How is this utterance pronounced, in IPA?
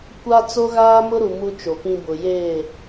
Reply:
kʷ a˦ t͡s o˦ ɣ aː˦ m ʊ˦ ɾ u˨ m u˦ t͡ʃ o˨ p ĩ˦ b ʊ˨ j eː˦˨

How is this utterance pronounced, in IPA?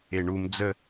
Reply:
e ɳ u m d͡z ə

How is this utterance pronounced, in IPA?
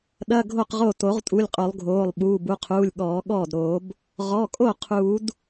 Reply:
ɗ ɐ˧˥˧ ɡʱ o˥˩ q ʁ o˥˩ t o˨˩˦ ʁ tʼ u˩˧˩ lʲ qʼ o˨˩˦ lˠ ɡʱ oː˩˧˩ lˠ ɓ uː˩˧˩ b u˩˧˩ qʰ uː˩˧˩ lʲ ɠ ɔː˨˩˦ ɠ ɔː˥˩ d ɾ oː˨˩˦ b | ʁ ɔ˩˧˩ kʼ o˥˩ qʰ uː˨˩˦ d

